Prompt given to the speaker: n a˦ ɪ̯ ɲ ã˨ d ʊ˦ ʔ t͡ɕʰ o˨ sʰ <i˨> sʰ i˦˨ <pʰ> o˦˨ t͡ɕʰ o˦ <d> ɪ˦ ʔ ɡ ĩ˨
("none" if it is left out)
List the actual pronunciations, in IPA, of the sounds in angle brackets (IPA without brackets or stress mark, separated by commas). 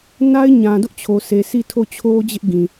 e˨, tʰ, d͡ʑ